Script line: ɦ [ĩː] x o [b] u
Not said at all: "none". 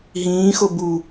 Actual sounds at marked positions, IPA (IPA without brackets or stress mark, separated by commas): ĩː, b